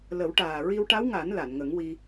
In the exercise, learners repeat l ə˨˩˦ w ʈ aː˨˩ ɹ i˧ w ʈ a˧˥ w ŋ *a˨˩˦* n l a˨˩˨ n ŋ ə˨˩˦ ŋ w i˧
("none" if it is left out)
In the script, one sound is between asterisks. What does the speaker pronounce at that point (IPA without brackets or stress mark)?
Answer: a˨˩˦